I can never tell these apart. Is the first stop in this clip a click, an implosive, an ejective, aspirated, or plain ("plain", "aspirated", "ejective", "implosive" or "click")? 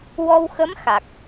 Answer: plain